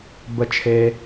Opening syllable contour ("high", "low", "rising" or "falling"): high